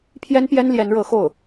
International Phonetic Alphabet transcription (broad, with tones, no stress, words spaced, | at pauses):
pʰjɛ˥npjɛ˥n ljɛ˧˥nɻɤ˧˥xo˥˩ʊ̯